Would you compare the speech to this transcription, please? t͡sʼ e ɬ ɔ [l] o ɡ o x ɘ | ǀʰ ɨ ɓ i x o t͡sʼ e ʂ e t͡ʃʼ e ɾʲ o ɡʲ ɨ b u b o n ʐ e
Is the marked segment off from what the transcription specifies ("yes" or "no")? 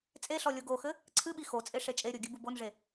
yes